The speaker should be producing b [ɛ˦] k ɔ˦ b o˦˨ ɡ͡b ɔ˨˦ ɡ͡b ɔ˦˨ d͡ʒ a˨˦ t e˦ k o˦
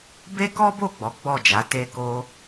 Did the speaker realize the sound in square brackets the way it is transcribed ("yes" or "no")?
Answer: no